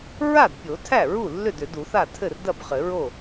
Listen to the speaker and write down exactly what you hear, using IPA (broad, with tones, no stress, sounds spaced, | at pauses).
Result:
ɹ a˥˩ d pʲ o˨˩˦ tʰ æ˥˩ ɹ u˥˩ lː ʏ˥˩ d ʏ˨˩˦ d u˨˩˦ θ a˥˩ tʰ ɘ˥˩ r d ɐ˥˩ b χ ɘ˨˩˦ ɹ o˥˩